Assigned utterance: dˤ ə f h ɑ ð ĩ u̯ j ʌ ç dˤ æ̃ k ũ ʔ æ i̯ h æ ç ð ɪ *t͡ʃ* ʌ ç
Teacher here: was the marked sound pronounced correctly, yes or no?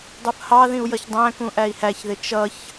yes